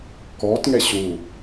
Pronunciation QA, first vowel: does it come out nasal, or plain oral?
oral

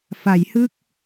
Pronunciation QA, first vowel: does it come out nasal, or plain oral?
oral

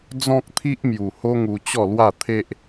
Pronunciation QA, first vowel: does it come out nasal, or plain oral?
nasal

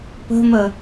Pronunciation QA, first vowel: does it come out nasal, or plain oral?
oral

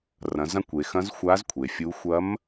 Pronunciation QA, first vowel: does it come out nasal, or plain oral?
nasal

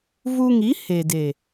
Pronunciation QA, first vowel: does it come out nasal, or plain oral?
oral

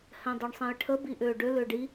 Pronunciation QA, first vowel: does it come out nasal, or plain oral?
nasal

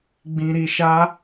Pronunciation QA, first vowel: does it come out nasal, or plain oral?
nasal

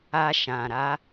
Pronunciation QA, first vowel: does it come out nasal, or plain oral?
oral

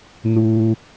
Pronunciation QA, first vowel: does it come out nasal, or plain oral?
oral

